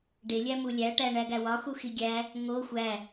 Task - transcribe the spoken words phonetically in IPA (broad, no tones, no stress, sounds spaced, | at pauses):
ɖ e lʲ æ m u lʲ æ ʈ æ ɳ æ ɡ æ w ɒ x u x i ɡʲ æ | ŋ o xʷ æ